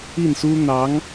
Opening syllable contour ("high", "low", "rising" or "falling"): falling